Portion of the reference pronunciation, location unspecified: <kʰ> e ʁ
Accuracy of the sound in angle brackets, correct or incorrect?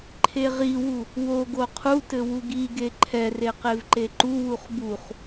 incorrect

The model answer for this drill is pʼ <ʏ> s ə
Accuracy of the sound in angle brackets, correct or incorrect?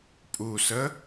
incorrect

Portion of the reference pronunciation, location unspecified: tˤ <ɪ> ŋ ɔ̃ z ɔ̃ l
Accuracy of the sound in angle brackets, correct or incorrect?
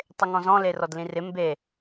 correct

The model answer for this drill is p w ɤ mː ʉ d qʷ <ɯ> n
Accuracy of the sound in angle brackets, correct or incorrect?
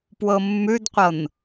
incorrect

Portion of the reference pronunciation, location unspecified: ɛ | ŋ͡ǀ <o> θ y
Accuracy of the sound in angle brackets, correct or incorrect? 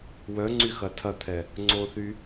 correct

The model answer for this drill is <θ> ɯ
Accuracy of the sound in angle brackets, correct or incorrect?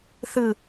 correct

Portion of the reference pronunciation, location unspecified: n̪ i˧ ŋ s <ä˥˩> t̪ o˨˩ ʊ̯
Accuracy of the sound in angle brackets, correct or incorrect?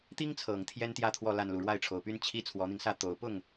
correct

